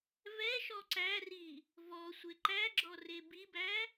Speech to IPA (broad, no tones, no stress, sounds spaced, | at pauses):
v ɛ ʃ ɔ ǀ æ r i | v ɔ sʷ e ǃ æ ɡ͡ǁ ɔ r e b i b æ